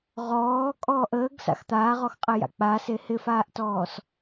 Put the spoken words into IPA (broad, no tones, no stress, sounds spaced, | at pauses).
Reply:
ʁ ɔː kʼ ɔː ʔ əː ɡ s a̰ x t̪ aː ʁ ɔ x qʼ ɪ j a̰ k͡p a s e h ɪ f aː ʔ t ɔː s